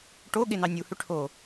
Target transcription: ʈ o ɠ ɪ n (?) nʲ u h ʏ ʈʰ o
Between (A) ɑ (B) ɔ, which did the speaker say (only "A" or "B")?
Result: A